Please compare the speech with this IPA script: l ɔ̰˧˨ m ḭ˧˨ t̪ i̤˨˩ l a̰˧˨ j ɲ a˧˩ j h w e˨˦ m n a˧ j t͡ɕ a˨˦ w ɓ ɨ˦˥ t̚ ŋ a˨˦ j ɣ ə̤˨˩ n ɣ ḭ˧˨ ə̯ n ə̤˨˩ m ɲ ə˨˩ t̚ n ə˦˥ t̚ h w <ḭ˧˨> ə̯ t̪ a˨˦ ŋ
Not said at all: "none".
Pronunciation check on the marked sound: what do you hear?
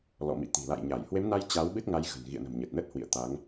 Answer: ḭ˧˨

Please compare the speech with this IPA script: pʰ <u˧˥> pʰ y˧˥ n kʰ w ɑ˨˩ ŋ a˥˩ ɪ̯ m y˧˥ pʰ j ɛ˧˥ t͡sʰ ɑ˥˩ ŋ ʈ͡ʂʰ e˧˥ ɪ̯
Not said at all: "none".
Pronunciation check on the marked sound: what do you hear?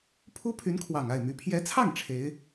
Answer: u˥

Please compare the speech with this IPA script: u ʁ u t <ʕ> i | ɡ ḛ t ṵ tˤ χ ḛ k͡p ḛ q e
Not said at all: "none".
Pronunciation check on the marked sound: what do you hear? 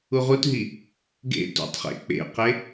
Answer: ɦ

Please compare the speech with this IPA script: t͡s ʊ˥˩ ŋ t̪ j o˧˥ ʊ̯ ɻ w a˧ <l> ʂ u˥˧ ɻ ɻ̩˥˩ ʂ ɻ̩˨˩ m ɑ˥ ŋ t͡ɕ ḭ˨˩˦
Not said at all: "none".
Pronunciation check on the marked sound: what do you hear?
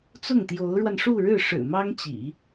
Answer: n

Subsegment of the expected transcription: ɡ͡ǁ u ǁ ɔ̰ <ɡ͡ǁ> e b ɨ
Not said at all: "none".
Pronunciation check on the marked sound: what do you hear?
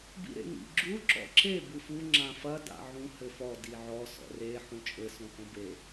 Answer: ǁ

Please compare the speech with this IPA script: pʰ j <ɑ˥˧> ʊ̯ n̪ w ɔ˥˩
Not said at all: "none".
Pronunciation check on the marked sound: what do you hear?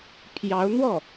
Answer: ɑ˧˥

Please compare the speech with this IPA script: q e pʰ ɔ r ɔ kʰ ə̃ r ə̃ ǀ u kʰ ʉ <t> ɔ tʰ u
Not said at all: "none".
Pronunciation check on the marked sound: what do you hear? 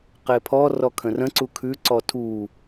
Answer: ǀ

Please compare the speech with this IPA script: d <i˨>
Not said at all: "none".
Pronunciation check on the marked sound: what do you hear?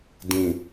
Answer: ĩ˨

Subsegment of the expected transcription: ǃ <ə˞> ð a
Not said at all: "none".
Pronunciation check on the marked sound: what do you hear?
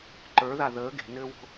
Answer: ə˞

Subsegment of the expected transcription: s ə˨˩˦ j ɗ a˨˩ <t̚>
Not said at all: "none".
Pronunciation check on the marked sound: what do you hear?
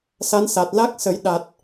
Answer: t̚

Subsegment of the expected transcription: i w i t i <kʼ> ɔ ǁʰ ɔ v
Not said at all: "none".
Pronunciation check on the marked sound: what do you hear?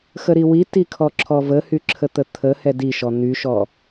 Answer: kʰ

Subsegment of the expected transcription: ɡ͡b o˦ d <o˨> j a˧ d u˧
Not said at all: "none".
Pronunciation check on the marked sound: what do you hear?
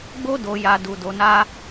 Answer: o˧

